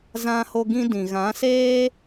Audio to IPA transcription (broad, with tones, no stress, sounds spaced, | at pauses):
z ã˧ h o˧ ɡ ĩ˧ d ĩ˨ ɣ ã˨˦ s eː˦